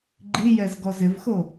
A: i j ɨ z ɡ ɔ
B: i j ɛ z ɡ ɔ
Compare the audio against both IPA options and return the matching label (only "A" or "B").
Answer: B